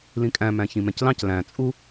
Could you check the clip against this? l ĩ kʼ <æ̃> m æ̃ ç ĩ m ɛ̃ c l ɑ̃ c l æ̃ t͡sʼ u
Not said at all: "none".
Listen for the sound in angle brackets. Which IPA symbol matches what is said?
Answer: æ̃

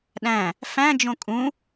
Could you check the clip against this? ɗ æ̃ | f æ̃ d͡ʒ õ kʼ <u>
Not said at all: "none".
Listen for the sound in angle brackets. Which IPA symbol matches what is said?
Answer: ũ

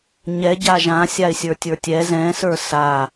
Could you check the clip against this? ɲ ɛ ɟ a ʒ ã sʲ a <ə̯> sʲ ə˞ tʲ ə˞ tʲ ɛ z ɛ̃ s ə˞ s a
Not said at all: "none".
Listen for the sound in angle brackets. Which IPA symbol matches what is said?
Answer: ɪ̯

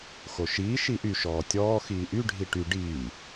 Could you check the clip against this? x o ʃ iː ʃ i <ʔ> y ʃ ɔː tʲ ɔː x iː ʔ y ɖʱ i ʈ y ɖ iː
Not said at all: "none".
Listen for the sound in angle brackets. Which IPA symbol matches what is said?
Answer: ʔ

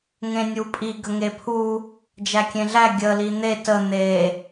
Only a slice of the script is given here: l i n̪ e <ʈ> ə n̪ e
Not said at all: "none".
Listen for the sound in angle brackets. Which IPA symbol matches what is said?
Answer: t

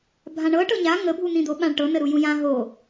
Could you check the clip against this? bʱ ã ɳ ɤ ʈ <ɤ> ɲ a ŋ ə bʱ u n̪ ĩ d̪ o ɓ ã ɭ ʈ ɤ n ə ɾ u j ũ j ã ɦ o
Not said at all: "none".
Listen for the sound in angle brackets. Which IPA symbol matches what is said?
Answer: ɤ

